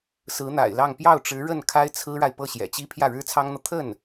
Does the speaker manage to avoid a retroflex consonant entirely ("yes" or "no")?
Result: no